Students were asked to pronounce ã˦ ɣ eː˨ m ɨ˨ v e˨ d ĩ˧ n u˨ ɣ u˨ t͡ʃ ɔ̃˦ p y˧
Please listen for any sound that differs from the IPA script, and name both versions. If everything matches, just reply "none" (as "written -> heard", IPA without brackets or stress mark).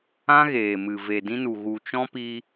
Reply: y˧ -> i˧